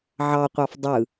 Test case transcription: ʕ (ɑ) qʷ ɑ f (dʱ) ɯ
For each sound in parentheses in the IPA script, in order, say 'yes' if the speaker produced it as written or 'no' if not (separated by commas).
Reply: yes, no